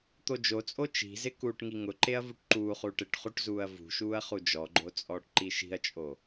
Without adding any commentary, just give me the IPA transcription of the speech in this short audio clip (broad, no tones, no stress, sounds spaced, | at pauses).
t̪ o d͡ʒ o t͡sʼ o t͡ʃ i̤ z ɪ k uː ʈ ŋ i ŋ ʊ ǃ e ɐ̯ v u ʈ ǃ uː χ uː ʈ ɪ ʈ χ u ʈ z uː ɐ̯ v ṳ ʃ uː ɐ̯ χ u d͡ʒ ɔ ɡ͡ǃ o t͡sʼ ɔː ʈ ǃ i ʃ i̤ ɐ̯ t͡ʃʼ o